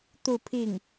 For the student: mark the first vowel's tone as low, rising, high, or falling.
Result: falling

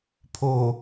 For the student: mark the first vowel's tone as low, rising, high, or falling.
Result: low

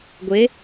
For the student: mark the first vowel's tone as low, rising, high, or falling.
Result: rising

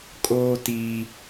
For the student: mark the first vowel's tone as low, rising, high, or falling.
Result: high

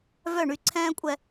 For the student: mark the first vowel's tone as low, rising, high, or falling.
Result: falling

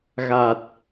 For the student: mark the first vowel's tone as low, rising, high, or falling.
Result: low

